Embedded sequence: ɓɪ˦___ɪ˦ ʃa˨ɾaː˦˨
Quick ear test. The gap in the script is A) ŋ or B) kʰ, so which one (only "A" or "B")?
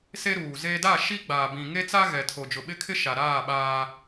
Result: B